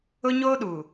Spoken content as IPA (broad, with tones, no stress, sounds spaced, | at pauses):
ʊ˦ ɲ oː˦ ɗ u˨